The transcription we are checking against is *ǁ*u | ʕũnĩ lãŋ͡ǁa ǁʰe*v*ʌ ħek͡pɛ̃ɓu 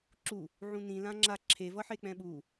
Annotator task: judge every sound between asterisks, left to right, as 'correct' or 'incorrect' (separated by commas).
correct, correct